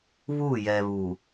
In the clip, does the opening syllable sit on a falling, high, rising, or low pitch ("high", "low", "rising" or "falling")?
falling